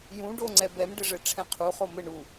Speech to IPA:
jũɖoŋ͡ǀɛ bɛmɖɘʐɘ ʈ͡ʂʰɛ̃qʰu χomɘ ɳu

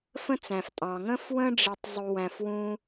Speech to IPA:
fə̃˦t͡sæ̃˨ftʼɑ̃˨ ŋə̃˦fwə̃˦ ɖ͡ʐi˧tˤ zˤu˧ wæ̃˧fwũ˦

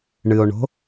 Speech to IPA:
ɳɨo̯ɳo̤

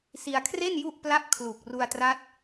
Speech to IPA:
si˧a̯kʰre˥˩n ju˥˩ʔpla˥˩p̚kʰlu˨˩k̚ ru˧a̯tra˦˥t̚

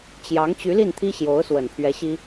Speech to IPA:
t͡ɕjɑ˧˥ŋ t͡ɕy˧˥li˥˩nt̪ʰi˥ ɕjo˧˥ʊ̯swə˨˩npʰɥɛ˧˥ɕi˥

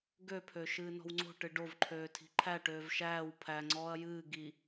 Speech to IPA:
ɡøpʰø ʃɨːnɔ̤wŋ͡ǀo̤ʈɨ ɖovǃʰøː tʰi̤ǃʰæ ʈøːvʃæːw pʰæŋ͡ǀɔːɐ̯ jɨː ɡi

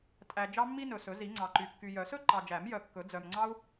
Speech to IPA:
tʼæ˨ d͡ʒɑ˥mːi˥nɵ˨sɵ˨˩˦ zi˨˩˦ŋ͡ǀɑ˨ǃy˨ kːy˨jœ˨˩˦sɵ˥ ǃɑ˨d͡ʒæ˨˩˦m jœ˨kːɵ˨˩˦ d͡zœ˨mŋ͡ǀɑ˥u̯

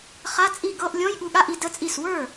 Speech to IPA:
χa˧˥˧t͡sʼi˥˩ ɡɤ˧˥˧ʔlʲɔ̃˧˥˧j ɠu˧ɠa˧˥˧ʔi˧ də˧˥˧t͡sʼi˥˩s wə˞˥˩

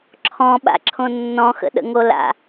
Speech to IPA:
ǁʰɔ̃ɓa̰ǁʰõ nːɔ̃xə̰ɗə̰ŋo la̰

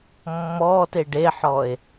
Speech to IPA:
mːɔːte ɖeħɔe̯

